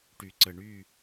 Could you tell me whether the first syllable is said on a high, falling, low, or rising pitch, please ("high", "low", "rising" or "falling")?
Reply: low